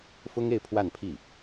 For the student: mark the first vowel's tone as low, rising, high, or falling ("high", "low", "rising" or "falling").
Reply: high